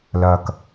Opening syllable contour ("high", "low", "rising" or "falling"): low